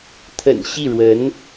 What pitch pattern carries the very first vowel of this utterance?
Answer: low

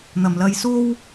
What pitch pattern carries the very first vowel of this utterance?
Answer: low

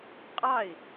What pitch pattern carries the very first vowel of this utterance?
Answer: falling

